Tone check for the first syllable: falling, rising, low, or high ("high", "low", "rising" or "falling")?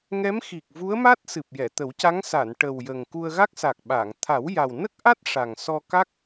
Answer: rising